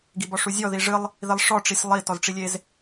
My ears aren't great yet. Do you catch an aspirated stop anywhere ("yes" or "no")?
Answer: no